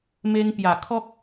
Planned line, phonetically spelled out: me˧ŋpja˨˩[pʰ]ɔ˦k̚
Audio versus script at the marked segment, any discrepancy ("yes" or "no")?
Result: yes